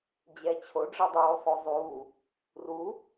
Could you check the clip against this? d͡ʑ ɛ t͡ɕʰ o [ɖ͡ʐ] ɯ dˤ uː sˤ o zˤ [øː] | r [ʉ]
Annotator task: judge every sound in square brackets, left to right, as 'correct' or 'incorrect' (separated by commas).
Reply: correct, incorrect, incorrect